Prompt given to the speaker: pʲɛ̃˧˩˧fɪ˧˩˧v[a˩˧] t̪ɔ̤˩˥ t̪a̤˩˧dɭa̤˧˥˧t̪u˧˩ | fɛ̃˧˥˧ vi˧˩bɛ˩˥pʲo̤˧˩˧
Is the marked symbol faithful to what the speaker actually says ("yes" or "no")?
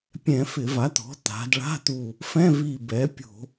no